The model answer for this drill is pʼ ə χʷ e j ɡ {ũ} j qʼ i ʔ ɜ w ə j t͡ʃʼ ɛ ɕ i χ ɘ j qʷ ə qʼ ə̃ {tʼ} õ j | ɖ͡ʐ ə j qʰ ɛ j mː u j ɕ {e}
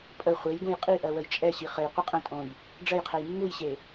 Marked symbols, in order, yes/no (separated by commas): yes, yes, yes